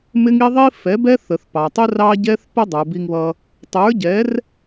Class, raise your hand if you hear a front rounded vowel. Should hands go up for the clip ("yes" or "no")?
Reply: no